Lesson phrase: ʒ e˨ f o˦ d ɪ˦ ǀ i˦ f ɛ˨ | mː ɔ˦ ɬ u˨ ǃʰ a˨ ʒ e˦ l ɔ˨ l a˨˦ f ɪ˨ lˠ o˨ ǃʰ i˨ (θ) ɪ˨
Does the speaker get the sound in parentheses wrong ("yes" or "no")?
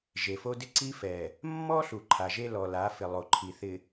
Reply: no